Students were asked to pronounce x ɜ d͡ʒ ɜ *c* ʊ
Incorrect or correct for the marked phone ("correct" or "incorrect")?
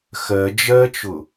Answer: incorrect